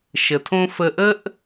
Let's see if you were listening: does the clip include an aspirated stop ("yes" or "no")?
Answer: yes